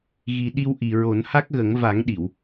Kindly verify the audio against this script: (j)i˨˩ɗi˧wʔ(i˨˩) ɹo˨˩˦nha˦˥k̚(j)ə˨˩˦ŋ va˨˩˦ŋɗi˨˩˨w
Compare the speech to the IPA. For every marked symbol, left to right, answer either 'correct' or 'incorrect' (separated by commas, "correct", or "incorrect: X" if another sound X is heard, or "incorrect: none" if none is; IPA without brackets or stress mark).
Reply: incorrect: ɣ, correct, incorrect: ɣ